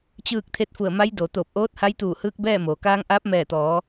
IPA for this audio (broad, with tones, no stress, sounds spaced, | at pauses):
t͡ɕ ɯː˥˨ k̚ t̪ʰ e˧˥ t̚ f u˧˩ ə̯ m a˧˥ j d o˩ t̪ oː˧˩ p̚ ʔ oː˧˥ t̚ h a˧˥ j t̪ uː˧˩ h ɯː˧ k̚ b ɛː˥˨ m oː˩ k aː˧ ŋ ʔ aː˧˥ p̚ m ɛː˧˩ t̪ ɔː˩˧